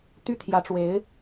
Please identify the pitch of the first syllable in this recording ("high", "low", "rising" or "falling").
falling